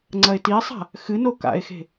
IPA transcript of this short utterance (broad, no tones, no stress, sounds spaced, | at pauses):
ŋ͡ǀ ɐ e̯ t i e̯ sˤ a̤ | x ɨ n o k a̰ e̯ x e̤